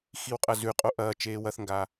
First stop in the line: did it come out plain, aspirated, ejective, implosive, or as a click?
ejective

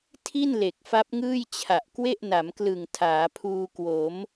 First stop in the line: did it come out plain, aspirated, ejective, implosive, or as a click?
aspirated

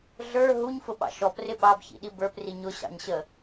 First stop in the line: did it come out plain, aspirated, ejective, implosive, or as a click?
implosive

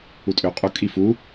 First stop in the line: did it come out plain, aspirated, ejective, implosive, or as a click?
ejective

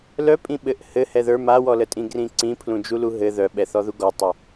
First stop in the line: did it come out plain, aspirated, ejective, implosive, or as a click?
ejective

